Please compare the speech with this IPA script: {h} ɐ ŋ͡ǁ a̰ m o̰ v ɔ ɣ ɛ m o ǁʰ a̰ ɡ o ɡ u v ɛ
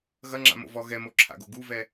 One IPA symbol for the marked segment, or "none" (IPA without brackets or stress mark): ɣ